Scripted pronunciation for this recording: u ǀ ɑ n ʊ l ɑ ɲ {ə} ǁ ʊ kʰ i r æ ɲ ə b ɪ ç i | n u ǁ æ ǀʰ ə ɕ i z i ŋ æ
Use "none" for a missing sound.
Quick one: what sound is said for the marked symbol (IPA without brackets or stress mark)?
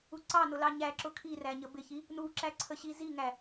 æ